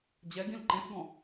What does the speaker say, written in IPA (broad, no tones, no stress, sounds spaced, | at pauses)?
d͡ʑ ɛ ɡ ĩ l ǃ ẽ s ɡ ɔ̃